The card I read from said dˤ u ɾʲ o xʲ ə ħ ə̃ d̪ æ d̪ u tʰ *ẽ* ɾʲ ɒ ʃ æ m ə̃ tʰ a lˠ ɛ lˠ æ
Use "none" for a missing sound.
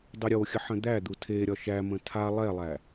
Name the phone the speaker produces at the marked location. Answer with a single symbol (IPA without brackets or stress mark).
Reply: e